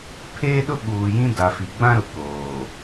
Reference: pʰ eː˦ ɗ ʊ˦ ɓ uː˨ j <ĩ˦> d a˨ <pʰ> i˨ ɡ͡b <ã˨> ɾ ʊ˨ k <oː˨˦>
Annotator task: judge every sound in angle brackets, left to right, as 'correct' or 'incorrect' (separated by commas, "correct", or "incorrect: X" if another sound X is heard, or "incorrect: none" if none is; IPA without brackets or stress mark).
correct, incorrect: f, incorrect: ã˦, incorrect: oː˨